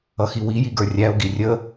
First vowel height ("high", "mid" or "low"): mid